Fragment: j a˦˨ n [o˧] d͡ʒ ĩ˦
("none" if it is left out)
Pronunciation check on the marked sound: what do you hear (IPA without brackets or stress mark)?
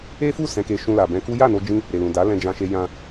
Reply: o˧